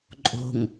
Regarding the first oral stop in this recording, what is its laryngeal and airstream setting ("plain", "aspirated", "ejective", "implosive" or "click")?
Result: click